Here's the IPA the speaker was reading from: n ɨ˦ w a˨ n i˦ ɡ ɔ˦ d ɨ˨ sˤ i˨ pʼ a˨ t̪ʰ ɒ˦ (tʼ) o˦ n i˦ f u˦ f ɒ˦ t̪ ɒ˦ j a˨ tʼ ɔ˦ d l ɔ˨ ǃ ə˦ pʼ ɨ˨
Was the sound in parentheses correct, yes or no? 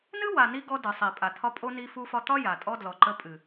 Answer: no